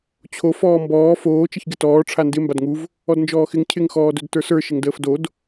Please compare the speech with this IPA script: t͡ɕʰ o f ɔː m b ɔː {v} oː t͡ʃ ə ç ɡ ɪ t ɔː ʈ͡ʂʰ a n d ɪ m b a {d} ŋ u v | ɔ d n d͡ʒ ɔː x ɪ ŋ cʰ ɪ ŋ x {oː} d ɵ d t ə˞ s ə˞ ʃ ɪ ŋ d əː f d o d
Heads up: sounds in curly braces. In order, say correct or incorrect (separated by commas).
incorrect, correct, incorrect